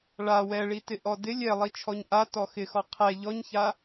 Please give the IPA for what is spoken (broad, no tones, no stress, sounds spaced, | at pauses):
ɭ a w ɛ ɭ i t ɪ ʔ ɔ d ɪ lʲ ɛ lˠ i t͡ʃʰ ɔ ɲ ʔ a t ɔ x ɪ x ɔ qʰ ɛ ʎ ɔ ɲ ç a